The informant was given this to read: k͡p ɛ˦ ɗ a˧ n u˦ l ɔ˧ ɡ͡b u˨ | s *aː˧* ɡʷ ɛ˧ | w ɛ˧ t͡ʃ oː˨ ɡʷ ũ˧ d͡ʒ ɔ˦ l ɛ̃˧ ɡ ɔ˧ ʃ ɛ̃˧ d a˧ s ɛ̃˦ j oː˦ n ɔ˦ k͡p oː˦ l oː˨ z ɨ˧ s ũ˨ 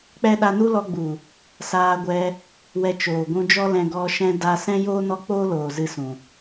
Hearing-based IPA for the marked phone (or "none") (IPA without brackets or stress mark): aː˧